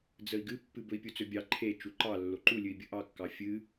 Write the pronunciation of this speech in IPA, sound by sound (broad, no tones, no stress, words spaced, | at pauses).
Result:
d͡zəi̯ɡɨpːɨb ɵi̯pʲut͡sɵbʲɑ ǃʰe t͡ʃuǃɑ lːoǃulʲɨi̯ bʲəʔɑkːɑ fʲɨ